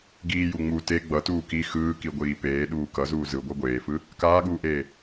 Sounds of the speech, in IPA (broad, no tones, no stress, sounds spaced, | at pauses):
ɡ iː j u ŋ͡m u t e ɡ͡b ʌ t uː k i x ɯː k i ɡʷ iː p eː ɗ uː k ʌ z uː z ɯ ɡʷ ʌ ɡʷ eː f ɯ | k aː ɠ uː ʔ eː